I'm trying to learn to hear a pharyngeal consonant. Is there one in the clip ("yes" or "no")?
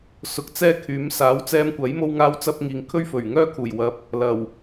no